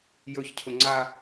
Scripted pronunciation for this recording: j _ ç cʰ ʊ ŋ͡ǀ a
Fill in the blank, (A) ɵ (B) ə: A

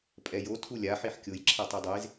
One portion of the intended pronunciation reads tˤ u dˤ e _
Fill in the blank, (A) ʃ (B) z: B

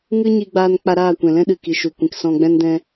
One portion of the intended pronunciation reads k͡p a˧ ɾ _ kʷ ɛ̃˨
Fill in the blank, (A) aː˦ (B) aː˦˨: B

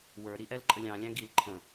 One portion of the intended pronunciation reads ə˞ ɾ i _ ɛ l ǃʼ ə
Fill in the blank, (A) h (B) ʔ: B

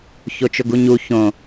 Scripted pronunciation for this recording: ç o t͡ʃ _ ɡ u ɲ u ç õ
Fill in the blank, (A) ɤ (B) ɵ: B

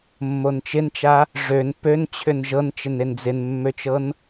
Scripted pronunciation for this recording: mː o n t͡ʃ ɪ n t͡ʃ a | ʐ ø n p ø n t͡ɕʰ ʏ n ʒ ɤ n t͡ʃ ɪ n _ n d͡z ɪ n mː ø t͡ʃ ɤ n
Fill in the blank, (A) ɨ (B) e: B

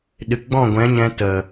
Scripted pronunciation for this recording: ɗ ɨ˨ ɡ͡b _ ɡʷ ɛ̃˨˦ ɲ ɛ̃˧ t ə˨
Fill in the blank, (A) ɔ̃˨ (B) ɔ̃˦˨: B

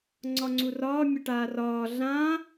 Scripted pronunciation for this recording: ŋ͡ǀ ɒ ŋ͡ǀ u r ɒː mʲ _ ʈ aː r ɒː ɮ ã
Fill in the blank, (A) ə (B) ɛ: A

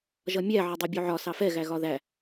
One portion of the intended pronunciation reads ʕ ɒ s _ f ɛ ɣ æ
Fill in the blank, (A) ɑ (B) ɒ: A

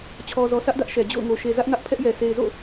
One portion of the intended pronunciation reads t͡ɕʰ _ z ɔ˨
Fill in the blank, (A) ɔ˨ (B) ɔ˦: A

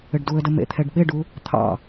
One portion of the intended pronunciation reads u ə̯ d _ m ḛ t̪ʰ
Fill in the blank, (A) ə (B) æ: A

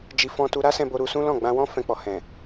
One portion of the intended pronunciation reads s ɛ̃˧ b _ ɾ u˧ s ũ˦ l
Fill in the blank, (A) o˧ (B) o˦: A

